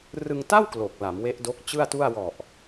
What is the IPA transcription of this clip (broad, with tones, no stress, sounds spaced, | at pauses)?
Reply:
r ɯ˧ ŋ t a˥˩ w k l o˨˩ k̚ l a˩˦ m w e˦˥ ʔ d o˦˥ k̚ t͡ɕ ɯ˥˩ a̯ t u˥˩ a̯ w ɔ˨˩ ʔ